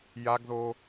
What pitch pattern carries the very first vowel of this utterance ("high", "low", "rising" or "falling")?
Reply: high